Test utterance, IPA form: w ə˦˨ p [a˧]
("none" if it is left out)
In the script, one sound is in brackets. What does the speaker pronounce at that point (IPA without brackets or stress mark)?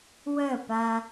a˧